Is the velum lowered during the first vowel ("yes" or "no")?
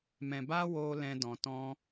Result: yes